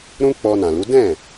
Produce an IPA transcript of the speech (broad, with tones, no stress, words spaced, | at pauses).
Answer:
ɾũ˦ k͡pɔ˧ nã˨lu˨˦ dɛ̃˦˨